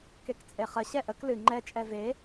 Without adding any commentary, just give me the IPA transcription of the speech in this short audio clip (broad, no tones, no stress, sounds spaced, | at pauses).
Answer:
k e k t͡sʼ e χ ə ɕ ɛ ʔ ə k l ɨ ŋ͡ǃ ɛ t͡ʃʼ ɛ v e